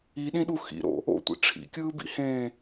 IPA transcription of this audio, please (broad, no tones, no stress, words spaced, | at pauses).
iɗĩɗu xḭɾo̰ | o̰tʷḭ ʈ͡ʂʰḭkʲɯːbḭhẽː